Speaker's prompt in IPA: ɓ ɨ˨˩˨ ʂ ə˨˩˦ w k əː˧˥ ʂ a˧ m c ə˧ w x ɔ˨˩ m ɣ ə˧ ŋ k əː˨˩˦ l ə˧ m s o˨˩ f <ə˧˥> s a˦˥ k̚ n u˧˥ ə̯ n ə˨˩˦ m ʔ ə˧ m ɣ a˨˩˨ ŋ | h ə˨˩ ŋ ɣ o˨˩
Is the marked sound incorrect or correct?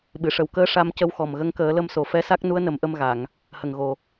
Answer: incorrect